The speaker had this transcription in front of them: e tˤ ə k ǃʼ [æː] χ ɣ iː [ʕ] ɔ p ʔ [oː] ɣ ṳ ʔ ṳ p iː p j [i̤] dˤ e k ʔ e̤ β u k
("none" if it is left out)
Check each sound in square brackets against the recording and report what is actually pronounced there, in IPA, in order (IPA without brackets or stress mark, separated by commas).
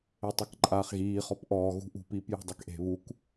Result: aː, χ, ɔː, e̤